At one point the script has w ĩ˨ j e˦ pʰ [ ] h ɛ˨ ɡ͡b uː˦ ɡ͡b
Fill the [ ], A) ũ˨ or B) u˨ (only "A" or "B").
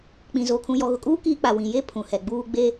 A